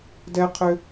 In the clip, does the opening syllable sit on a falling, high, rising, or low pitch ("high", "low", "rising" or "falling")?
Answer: high